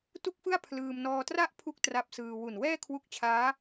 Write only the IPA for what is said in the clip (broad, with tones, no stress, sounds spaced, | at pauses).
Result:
t u˥˩ k̚ f ɯ˥˩ a̯ pʰ l ɯː˧ m n ɔː˧ t r a˥˩ ʔ pʰ u˥˩ k̚ t r a˦˥ p̚ s ɯː˧ w u˨˩ n w ɛː˥˩ kʰ w u˦˥ k̚ t͡ɕʰ aː˦˥